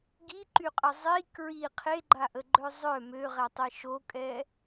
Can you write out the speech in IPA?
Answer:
ɡ i ǃ y qʼ ə zˤ i k ɹ i qʰ e ɡ͡ǃ a ʔ ə ɡ͡ǃ œ zˤ œ m ø ʁ ɛ tˤ e ʃ o kʼ ɛ

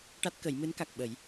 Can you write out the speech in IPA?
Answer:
ʈ a˦˥ t̚ k ə˨˩˦ j m ɨ˧˥ n k a˨˩ k̚ ɓ ə˨˩˦ j

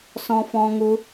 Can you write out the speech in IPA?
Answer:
s ɔ̃˦ f ɔ̃˦ ŋ u˦

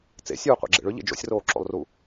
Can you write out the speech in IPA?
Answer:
t͡s ḛ sʲ uː qʷ ḛ ɡ͡ǁ ḛ ɭ ʏ ʎ ḛ d͡ʒ o̰ sʲ r oː ǁ o̰ lˠ r u

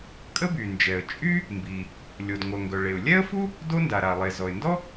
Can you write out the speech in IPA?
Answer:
kʼ ə˥ b y˩ n d͡ʒ ɛ˩ ə̯ t͡ʃʼ y˥ | m b i˩ | lʲ o˩ d ŋʷ œ˩ ŋ ɡ œ˩ ɭ e˩ ʊ̯ lʲ ɛ˥ ə̯ f u˥ | d o˥ n d a˩ ɾ a˩ lˠ e˩ z ɔ˩ ɪ̯ n d ɔ˥

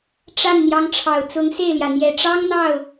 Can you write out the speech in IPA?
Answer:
ʈ͡ʂ a˥˩ n n̪ j ɑ˧˥ ŋ ʈ͡ʂʰ ɑ˨˩ ʊ̯ t͡s ʊ˧˥ ŋ s e˥˩ ɪ̯ l j ä˩ n̪ j ɛ˨˩ ʈ͡ʂ ɑ˥ ŋ n̪ ɑ˥˩ ʊ̯

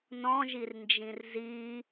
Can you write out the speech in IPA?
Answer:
n ɔ̃ ʒ i r n d͡ʒ ĩ r z i

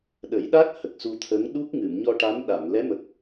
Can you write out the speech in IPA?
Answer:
ɗ ə˨˩˦ j ɗ a˦˥ k̚ h ə˨˩ k̚ s u˧ t̪ʰ ə˧˥ ŋ ɗ u˦˥ k̚ ŋ ɨ˨˩˨ m ɲ ɔ˧ ʈ a˧˥ m ɗ a˨˩˨ m l ɛ˧˥ m ə˨˩ k̚

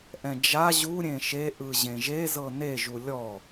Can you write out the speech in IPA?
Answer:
ʔ ɛ̃ d͡ʒ a ʑ u ɾʲ ẽ ʃ e ʔ ɯ ʑ ẽ ʒ e z ɤ n e ʒ u lʲ ɔ

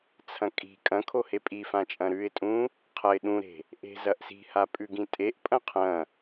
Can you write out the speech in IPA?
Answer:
t͡sʰ ɐ̃ kʼ i̤ kʼ ɐ̃ kʰ o h e pʼ i f ã t͡ʃʼ ɐ̃ ɾ ʉ ɪ̯ tʼ ũ | qʰ ɐ ɪ̯ ɗ ũ ɾ e̤ | ʔ e̤ z ɐ ʔ s i̤ h a pʼ ʉ ɡ ĩ tʼ e ʔ pʼ ɐ̃ qʰ ɐ̃

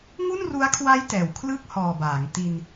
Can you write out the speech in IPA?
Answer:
ŋ u˥˩ n r u˦˥ a̯ kʰ w a˦˥ j t ɛː˨˩ w kʰ l ɯ˥˩ k̚ h ɔː˨˩ b aː˩˦ ŋ t i˧ n

